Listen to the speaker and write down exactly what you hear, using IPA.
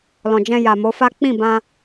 l ɔ̃˨ d͡ʒ ɛ̃˧ j a˨ m o˨˦ f a˦ k͡p ĩ˦˨ b ã˧

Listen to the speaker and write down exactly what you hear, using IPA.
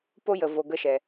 p o˦ j ə˨ v o˨ ɡ ə˦ ʃ ɛ˨

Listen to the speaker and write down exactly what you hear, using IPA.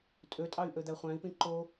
tʼ ø tʼ ɑ y̯ ʔ ø d̪ æ χʷ æ̃ i̯ p ĩ ǃ o

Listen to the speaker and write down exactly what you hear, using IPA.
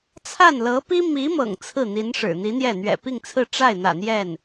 t͡sʰ a˥˩ n l ɤ˧˥ p i˥ m i˧˥ m ɤ̰˨˩ ŋ t͡sʰ ɹ̩˥˩ n̪ i˧˥ n ʂ ɻ̩˨˩ n̪ i˧˥ n̪ j ɛ˥˩ n̪ ɥ ɛ̰˨˩ p i˥˧ ŋ t͡sʰ ɹ̩˥˧ ʈ͡ʂ a˥˩ ɪ̯ n̪ ä̰˨˩ n̪ j ɛ˥˩ n

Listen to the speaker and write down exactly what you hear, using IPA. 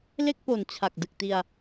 l e˥˩ k̚ p o˨˩ n t͡ɕʰ a˨˩ k̚ d ɯ˨˩ k̚ t i˧ a̯

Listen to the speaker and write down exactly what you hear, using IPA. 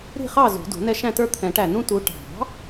ɾ i̤˥˨ χ ɑ˥˨ z ṳ˨˩˦ d ṳ˨˩˦ n ɛ˦ ʃ æ̃˥˨ t ə˞˦ t̪ʰ ɛ̃˨˩˦ ʈ æ˧˩ n ũ˦ t u˨˦ ʈ ɑ̤˨˩˦

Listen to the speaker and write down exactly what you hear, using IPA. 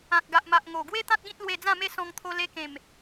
ã˨ k̚ ɡ a˨ ʔ m a˨ ʔ ŋ o˨˩ ɡ w e˦ t̪ ã˦ t̚ ɡ ĩ˦ t̚ l w e˧ d͡z ã˥˧ m e˥˧ s ɔ̃˧ ŋ t̪ʰ o˧ l e˧ k ẽ˨˩ m

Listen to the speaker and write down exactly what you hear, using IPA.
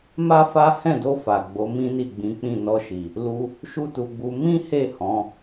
m a˦ f a˦ h ɛ̃˦˨ d o˧ f a˨ ɡ͡b o˨˦ m ĩ˦ n i˦˨ ɡ͡b ĩ˨˦ k͡p ĩ˦˨ n ɔ˧ ʃ i˨ | l u˧ | ʃ u˦ t u˧ ɡ͡b u˧ m ĩ˦ h e˦˨ h ɔ̃˨˦

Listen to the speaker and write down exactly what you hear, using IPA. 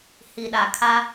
h i˨ ɗ a˨ kʰ a˦

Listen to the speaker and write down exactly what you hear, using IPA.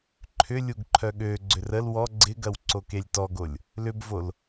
ǃʰ ʏ lʲ u ɡ ǃʰ œ ɠ ø ɡ͡ǀ ʏ r ə l w ɔ ɡ͡ǀ ɪ ɡ ɐ w ǀ o k e lʲ t ɔ ɡ o lʲ | l ʏ b v o l

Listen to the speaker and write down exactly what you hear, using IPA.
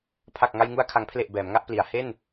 pʰ a˨˩ k̚ ŋ a˧ j ŋ u˧ a̯ kʰ a˩˦ ŋ pʰ l e˨˩ ʔ b ɛː˩˦ m ŋ a˦˥ ʔ p l i˩˦ a̯ h e˥˩ n

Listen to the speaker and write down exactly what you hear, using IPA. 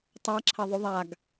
tˤ a ǁʰ ɐ ðˤ u ðˤ a ɡ

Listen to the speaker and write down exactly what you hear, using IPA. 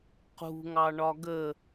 q ṳ ŋ ɑ ɳ ɒ ɡ ə

